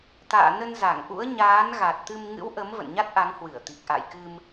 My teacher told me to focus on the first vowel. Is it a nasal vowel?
no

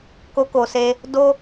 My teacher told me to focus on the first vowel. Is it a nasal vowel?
no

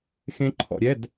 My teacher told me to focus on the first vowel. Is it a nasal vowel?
yes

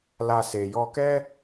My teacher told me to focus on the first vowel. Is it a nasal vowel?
no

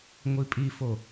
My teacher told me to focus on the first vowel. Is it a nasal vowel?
no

